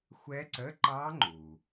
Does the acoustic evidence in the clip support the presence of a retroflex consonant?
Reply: no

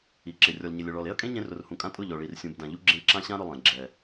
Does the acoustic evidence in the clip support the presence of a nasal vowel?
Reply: yes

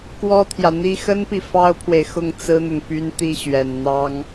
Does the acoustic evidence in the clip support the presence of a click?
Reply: no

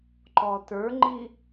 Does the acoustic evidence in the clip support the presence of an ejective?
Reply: no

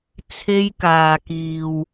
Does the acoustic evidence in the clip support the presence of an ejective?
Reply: no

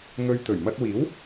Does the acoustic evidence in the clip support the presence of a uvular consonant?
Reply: no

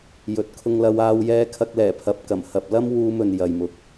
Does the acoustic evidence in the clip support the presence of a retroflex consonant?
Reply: no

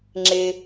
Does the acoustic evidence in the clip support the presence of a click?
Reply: yes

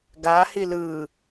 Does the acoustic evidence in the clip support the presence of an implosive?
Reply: no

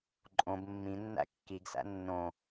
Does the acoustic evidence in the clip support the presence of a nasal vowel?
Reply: yes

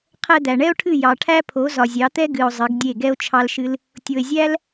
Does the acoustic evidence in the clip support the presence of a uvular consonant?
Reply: yes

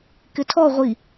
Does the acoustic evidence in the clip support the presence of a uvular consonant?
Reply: yes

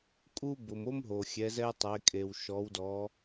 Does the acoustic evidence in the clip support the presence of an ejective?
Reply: yes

